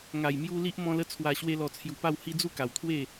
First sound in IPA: ŋ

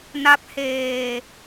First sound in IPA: n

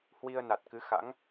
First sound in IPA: h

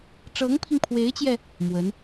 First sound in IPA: ʈ͡ʂ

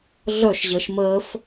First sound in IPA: ɮ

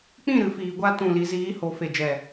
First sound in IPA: k͡p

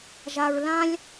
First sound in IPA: ʒ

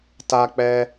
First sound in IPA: t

